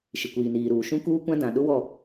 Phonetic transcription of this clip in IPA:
ʃɪ˨kʷiː˨niː˨ɾuː˨ ʃũ˦kuː˦kʷã˦ dã˨ ɗʊ˦wɔ˦˨

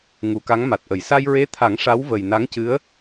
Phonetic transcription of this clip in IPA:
ŋu˨˩˦ka˧˥ŋma˨˩t̚ʔə˨˩˦j sa˧jɹe˧˥t̪ʰa˨˩˦ŋ ʂa˧˥w və˨˩jna˧˥ŋcɨ˧˥ə̯

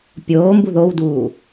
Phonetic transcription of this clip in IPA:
pʲoːmbu ðowduː

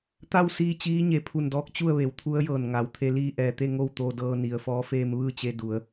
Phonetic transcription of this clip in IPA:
t̪a˥˨wsiː˧ t͡ɕiː˧˥ɲe˩ pʰu˧˩ndɔː˧˥k̚ t͡ɕu˥˨ə̯ʋe˩˧wt̪ʰu˧˥ə̯jɤː˧˩n ŋa˩˧wt̪ʰe˧ liː˧ʔɛː˩t̪e˥˨ ŋo˥˨wt̪o˧dɤː˧ ni˩˧ə̯fɔː˧˥ feː˧mʋɯː˥˨t͡ɕe˧ du˩˧ə̯

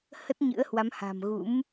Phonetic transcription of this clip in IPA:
hə˦˥t̚ɲɨ̰˧˥ə̯hwa˨˦m ha̤˨˩m ɣṵ˧˥m

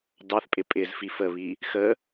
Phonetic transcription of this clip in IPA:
dɑθpʼɪ pʼɪz fifəβi | xə

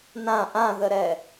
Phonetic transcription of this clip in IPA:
nã ʔãðəɾɛ

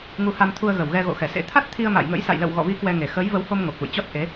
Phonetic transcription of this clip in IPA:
ŋu˨˦ha˧m t̪ʰu˧ə̯ɣə˨˩wɣɛ˧ ɣo̰˧˨xɛ˧˩sḛ˧˥ t̪ʰa˦˥t̚t̪ʰi˧ə̯ma̰ː˧˨jŋə̰˧˥j sa̰˧˨jlə̰˧˨w ɣɔ̰˧˨vi˨˦ kwɛ˧ŋe˨˩ xəː˨˦jvə˨˦who˧m ŋo˨˩k̚ʔṵ˧˨jt͡ɕɔ˦˥t̚ ʔe˨˦

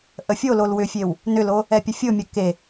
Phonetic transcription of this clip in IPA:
ʔəfʲolol wʏfʲew | nʏlo | ɛpʲəfʲʊmʲə ke

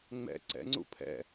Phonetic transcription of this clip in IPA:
ŋ͡mɛ̰ ǀɛ̰ŋ͡ǀṵ pʰɛ̰

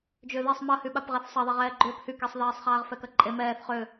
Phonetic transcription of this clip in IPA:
d͡ʒʏːðesˤ mɐhyɓap ʁɛθsˤɐðˤaʁ ɛːɡ͡ǃʏːp hykisˤðɛːsˤχaːʁ fɛkɐǃʼe mɛːθ χʏ

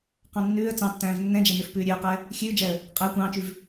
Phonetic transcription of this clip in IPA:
qɑ̃nːʉːə̯ t͡sɑ̃tːæ̃ːv nːɛ̃d͡ʒɛnøf pʉːɾʲøə̯qɛ | xʲʉːd͡ʒɛə̯ | qʼæ kʷɑ̃ːt͡ʃʉv

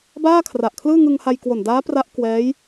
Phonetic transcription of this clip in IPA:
baː˥˩kʰra˨˩ʔkʰlɯː˥˩ ŋɯ˧ŋha˧j kwo˨˩ndaː˦˥pra˦˥ʔ kwɛː˦˥j

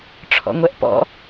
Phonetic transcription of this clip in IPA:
ʈ͡ʂʰɔ̰ŋʷɛʔpɔ̰

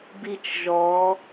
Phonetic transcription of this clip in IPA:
bi˥t͡ʃʒɔ˧˥

